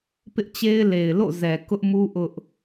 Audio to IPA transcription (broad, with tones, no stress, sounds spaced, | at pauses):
p ɪ˦ ʔ t͡ɕ e˦ ɪ̯ l e˨ ɪ̯ l o̰˦˨ z ɛ˨ k ʊ˦ ʔ m u˦ ʔ ʊ˦ ʔ